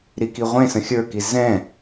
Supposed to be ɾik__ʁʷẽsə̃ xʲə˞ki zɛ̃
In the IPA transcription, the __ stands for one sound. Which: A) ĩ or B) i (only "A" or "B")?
B